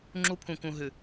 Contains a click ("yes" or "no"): yes